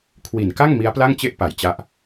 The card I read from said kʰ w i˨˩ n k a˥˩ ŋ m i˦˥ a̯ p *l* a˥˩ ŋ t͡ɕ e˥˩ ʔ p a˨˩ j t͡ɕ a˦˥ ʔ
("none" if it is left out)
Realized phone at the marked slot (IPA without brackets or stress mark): l